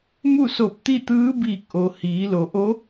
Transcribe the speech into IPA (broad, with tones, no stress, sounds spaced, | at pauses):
m u˥˨ s o˧˩ p̚ t̪ i˥˨ t̪ ɯː˧˥ b iː˧˩ k̚ ʔ o˩ h iː˩˧ l o˩ ʔ o˧˥